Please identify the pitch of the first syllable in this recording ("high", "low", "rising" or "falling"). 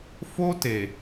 high